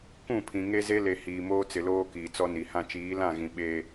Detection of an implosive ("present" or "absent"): present